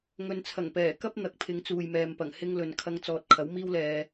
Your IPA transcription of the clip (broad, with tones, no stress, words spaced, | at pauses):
ŋɵ˨nt͡sʰɐ˨˩ŋpɛː˨˩ kɐ˥p̚n̪ɐ˨k̚ pʰɪ˨˧ŋt͡suː˨jmɛː˨mpɐ˨˩ŋ hɪ˥ŋlɵ˨n kʰɐ˨˧ŋt͡sɔː˨t̚ kʰɐ˨˥wmiː˥wlɛː˧